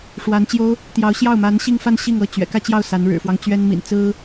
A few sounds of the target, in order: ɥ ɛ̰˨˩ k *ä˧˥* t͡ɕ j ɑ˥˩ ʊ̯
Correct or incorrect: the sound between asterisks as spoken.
incorrect: ä˥˧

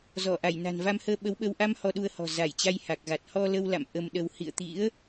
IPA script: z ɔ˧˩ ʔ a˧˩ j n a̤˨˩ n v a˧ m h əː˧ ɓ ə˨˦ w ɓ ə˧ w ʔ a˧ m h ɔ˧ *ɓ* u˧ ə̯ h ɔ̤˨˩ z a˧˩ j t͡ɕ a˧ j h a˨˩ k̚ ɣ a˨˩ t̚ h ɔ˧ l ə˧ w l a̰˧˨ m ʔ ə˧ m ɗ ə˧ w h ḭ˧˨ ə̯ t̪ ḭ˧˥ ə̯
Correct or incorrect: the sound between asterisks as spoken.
incorrect: ɗ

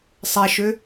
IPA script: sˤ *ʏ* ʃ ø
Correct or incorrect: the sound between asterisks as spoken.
incorrect: ɛ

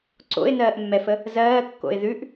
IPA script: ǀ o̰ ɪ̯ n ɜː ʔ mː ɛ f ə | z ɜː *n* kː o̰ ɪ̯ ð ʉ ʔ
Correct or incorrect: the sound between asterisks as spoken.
incorrect: none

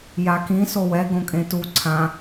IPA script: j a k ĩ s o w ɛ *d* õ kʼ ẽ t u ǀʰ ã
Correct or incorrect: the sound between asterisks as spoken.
incorrect: ɡ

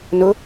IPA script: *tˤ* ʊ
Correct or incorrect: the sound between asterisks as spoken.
incorrect: n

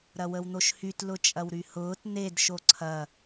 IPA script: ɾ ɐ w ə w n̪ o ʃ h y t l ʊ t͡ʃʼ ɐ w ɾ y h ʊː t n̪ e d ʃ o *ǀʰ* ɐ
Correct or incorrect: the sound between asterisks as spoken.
correct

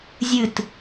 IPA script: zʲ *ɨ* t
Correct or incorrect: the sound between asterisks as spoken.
correct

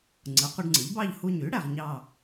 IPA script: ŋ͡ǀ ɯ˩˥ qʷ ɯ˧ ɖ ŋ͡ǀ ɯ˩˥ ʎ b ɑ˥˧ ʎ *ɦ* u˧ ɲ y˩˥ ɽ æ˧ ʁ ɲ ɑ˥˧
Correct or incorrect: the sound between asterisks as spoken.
incorrect: h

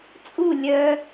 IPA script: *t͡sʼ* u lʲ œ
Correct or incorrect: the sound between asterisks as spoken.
correct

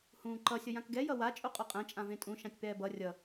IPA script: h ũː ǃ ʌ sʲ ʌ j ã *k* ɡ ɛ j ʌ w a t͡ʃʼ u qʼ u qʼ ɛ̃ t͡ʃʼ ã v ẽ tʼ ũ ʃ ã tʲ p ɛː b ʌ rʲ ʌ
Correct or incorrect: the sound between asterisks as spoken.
correct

